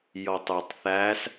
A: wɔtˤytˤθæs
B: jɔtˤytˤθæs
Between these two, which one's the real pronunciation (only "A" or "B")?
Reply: B